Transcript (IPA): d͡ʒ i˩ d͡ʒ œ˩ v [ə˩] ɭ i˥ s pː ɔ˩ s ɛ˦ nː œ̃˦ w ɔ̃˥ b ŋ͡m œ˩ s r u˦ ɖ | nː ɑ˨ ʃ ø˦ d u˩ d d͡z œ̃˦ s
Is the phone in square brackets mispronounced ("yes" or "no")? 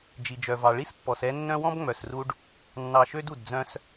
yes